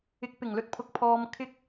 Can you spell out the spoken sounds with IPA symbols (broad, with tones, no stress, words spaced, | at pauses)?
ɪ˨˥k̚ pɪ˨˩ŋlɵ˨t̚pʰʊ˨k̚ pʰɔː˨mkʰɪ˧k̚